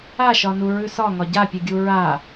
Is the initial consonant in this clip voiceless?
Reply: yes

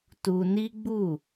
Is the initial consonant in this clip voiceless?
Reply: yes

